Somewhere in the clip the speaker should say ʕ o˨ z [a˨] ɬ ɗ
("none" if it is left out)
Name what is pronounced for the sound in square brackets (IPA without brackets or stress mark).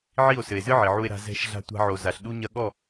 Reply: a˨